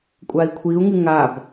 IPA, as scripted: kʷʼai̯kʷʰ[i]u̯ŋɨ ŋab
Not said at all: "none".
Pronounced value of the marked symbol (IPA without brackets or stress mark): i